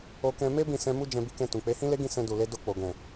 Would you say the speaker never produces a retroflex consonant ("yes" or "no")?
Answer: yes